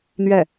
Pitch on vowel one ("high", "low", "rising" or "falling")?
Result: falling